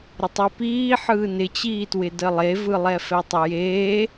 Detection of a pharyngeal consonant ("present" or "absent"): present